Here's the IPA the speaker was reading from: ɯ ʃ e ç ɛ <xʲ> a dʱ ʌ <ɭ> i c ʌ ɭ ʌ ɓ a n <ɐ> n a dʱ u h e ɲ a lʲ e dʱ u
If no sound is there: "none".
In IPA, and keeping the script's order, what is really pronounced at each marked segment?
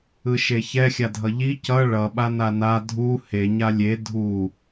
xʲ, ʎ, a

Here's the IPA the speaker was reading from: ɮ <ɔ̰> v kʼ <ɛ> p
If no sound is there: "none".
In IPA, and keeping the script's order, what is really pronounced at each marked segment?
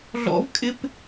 ɔ̰, ɪ

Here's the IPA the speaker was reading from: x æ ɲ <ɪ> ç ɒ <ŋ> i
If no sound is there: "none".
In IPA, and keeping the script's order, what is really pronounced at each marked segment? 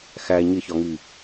ɪ, ŋ

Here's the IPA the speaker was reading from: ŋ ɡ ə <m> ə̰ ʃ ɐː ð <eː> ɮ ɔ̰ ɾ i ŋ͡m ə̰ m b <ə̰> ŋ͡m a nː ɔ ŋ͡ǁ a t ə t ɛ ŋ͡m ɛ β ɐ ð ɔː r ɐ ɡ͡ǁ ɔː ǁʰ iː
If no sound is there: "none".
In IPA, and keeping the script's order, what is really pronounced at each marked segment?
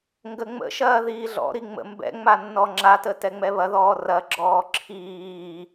ŋ͡m, iː, ɛ̰

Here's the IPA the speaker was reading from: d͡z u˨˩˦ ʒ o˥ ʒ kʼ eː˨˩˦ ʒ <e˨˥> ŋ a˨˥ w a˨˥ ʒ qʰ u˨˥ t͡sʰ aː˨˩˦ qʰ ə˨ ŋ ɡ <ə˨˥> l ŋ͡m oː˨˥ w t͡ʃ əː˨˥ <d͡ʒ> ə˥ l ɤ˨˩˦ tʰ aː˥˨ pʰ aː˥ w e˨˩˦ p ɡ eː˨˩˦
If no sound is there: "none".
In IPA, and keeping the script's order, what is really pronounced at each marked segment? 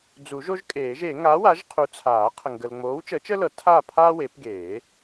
e˨˩˦, ə˨, t͡ʃ

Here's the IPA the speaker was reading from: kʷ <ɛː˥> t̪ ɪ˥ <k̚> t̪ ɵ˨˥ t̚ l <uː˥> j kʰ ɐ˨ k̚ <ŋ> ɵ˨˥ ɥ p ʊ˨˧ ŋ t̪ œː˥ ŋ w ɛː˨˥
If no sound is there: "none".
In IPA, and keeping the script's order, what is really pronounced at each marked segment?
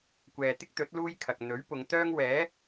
ɛː˨, k̚, uː˥, n̪

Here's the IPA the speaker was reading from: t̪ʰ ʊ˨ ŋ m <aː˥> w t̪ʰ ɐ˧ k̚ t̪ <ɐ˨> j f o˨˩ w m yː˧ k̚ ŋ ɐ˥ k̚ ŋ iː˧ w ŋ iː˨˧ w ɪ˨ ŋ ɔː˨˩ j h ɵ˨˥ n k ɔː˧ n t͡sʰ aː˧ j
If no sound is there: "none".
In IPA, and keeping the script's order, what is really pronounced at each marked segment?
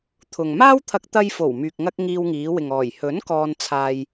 aː˥, ɐ˧

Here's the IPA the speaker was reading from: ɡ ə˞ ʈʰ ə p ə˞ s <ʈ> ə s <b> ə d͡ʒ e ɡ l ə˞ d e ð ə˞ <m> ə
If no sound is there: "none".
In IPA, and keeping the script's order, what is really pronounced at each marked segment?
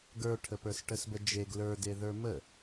ʈ, b, m

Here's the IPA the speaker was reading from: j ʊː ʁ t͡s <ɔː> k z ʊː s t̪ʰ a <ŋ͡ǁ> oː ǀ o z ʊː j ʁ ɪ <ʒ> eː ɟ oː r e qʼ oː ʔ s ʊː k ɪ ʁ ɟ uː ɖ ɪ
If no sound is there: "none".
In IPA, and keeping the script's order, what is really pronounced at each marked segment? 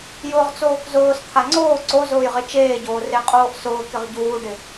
oː, ŋ͡ǀ, t͡ʃ

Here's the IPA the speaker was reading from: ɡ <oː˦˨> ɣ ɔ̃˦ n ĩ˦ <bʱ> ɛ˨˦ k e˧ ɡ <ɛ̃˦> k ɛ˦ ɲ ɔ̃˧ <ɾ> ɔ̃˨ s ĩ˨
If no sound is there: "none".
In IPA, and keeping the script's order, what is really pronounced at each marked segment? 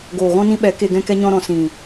oː˨, ɓ, ɛ̃˦, ɾ

